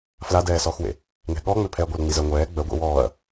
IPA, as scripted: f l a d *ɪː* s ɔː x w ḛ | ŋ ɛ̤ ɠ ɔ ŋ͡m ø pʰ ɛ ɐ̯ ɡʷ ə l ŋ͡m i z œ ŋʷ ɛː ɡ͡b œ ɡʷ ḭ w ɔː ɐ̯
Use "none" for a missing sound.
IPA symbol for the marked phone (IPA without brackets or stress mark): ɛː